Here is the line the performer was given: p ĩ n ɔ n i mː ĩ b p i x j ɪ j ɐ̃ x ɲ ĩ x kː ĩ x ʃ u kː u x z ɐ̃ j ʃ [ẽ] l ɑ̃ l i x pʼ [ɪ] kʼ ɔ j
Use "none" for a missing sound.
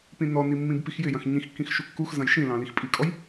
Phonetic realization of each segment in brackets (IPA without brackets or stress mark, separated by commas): ĩ, i